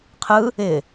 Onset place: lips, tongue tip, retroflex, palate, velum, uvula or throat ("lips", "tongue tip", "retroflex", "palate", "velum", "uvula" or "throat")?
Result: uvula